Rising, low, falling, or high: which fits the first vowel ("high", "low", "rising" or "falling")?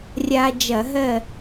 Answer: high